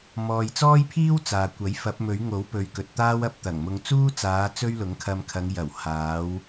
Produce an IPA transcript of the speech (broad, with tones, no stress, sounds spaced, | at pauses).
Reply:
m ɔː˨ j t͡s ɔː˥ j pʰ iː˥ w t͡s aː˨ kʷ ɐ˨˥ j f ɐ˨˥ p̚ m ɵ˨˥ ɥ ŋ o˨˥ w p ɵ˨ ɥ k ɵ˨ t̚ t̪ aː˥ w ɐ˧ p̚ t̪ ɐ˨˩ ŋ m ʊ˧ ŋ t͡s uː˥ t͡s aː˨˧ t͡s ɵ˥ ɥ l ʊ˨˥ ŋ kʰ ɐ˧ m kʰ ɐ˨˧ ŋ j ɐ˨˩ w h aː˨˧ w